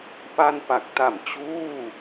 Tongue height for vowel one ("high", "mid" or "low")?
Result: low